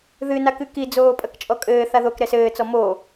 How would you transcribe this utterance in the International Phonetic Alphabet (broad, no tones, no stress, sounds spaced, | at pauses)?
ð ɨ n a k ɨ k i d͡z oː pʼ ɐ k t͡ʃʼ ɔ kʼ ɘː θ a ð o k ɾ ɛ s ɘː t͡s ɔ m o